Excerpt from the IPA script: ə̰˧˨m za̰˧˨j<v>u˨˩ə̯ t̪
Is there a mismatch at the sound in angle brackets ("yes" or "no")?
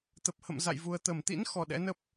no